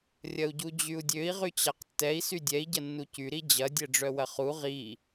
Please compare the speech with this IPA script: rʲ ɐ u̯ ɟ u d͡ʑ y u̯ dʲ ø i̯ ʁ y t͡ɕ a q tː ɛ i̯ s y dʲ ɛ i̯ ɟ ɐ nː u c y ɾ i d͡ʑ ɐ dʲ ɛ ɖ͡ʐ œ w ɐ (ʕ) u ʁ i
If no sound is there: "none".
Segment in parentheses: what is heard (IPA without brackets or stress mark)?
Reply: χ